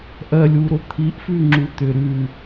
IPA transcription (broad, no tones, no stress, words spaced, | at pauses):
ʔɜlʲwuɾo t̪ʰiʔfʉŋ͡ǁu t̪ʏ ɾʉ